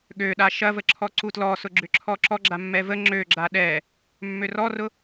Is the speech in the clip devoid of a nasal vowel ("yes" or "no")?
yes